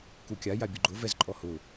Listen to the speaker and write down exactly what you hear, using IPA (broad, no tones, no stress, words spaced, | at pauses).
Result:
kukʲa jabʲʊɡ͡ǃʊ vɛzǃʼɔhʊ